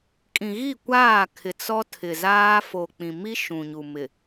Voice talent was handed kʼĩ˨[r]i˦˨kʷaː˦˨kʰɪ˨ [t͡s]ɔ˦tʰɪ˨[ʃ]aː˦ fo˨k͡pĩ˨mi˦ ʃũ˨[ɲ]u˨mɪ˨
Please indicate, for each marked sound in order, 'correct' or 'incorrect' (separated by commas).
incorrect, correct, incorrect, correct